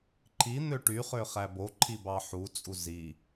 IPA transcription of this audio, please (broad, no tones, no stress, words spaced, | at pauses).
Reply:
ǃʰi n̪øʈyχø χæboǃʰi bɑħut͡sʼu zi